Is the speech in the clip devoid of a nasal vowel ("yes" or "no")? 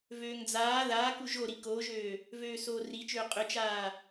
yes